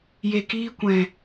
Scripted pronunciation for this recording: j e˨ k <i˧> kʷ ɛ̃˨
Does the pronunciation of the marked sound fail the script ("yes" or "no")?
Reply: yes